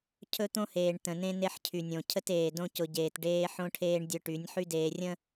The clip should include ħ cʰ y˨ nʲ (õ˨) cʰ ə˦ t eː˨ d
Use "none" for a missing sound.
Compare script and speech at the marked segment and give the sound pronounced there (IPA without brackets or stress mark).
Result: õ˨